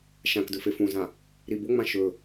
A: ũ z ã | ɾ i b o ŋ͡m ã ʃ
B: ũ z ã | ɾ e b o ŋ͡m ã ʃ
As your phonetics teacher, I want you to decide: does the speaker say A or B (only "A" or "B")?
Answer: A